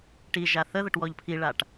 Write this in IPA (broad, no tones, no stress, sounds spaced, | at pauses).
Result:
ʈ i ʒ a θ ə ð ə ʈ w ɔ ʎ pʰ i ɭ a ʈ